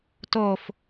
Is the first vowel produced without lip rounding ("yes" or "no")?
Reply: no